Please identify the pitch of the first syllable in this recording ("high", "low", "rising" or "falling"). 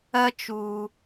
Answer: high